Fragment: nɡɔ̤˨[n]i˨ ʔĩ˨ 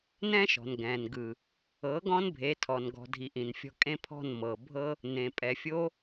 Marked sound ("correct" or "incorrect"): incorrect